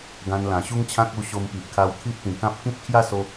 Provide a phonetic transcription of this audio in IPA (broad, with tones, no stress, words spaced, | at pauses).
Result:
ɡã˧nlã˨˩ɕu˦ŋt͡ɕʰã˦k̚ u˧ ɕo˧mpi˨ʔkʰa˧w t̪ʰi˦ʔt̪ĩ˨˩kã˦p̚ kĩ˦p̚kʰja˦so˧